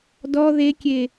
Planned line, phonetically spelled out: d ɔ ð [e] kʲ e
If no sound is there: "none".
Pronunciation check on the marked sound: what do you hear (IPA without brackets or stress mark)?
e